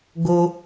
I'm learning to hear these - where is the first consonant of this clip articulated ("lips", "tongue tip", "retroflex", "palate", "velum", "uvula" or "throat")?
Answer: velum